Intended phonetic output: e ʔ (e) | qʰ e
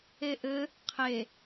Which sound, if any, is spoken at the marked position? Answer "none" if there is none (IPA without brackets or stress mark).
ɘ